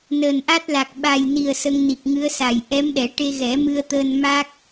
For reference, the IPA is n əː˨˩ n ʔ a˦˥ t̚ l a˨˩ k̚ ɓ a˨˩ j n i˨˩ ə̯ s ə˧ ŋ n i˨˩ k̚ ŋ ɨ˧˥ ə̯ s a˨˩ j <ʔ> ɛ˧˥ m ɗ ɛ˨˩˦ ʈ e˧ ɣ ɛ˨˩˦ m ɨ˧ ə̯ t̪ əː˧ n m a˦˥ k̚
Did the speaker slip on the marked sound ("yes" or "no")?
no